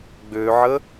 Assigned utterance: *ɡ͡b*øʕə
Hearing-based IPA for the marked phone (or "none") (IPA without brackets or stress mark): ɡ͡b